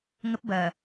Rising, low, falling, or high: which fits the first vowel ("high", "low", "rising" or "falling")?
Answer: high